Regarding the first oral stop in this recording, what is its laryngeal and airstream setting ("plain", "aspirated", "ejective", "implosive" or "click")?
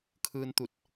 aspirated